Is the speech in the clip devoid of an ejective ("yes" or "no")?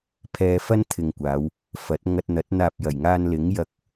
yes